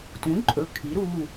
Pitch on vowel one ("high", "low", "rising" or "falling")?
rising